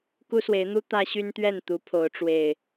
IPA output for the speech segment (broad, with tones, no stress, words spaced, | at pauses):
ku˦swe˨˦ɪ̯n̪u˦ t̪ä˦ɕy˦nt̪ɥɛ˥˨n t̪u˨˦pʰo˨˦ʊ̯ʈ͡ʂwe˨˩ɪ̯